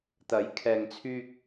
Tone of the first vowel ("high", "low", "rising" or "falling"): rising